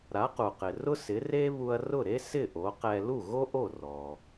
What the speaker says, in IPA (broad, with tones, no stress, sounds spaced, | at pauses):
ɾ a˩˥ q u˩ q ɪ˩ r ʊ˥ s ɪ˩˥ r e˥ β u˧ ɐ̯ r ʊ˥˩ ɾ e˥ s ɪ˥˩ ʔ o˩˥ q ɛ˧ l u˥˩ ɣ o˥ ʔ o˥˩ r ɔ˩